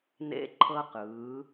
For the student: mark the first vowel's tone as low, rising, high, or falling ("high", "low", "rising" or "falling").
high